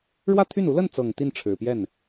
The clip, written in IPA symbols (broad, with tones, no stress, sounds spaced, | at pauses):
ɻ w ä˥˧ t̪ʰ y˥˩ n u˧˥ l ə˥˩ n t͡s ɤ˨˩ ŋ t̪ i˥˩ n ʈ͡ʂʰ ɻ̩˨˩ p j ɛ˥˩ n